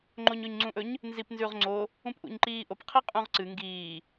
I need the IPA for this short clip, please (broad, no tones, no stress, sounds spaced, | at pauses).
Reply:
ŋ͡ǃ o ɲ ɵ ɲ ŋ͡ǀ ũ ʔ ɵ ɲ | n z i p n z ʉ ʁ ŋ͡ǀ o | ũ p ʔ ṵ ɲ ǃ iː ʔ o p qʰ i qʼ ũ ʁ ǀ ɨ ŋ ɡ iː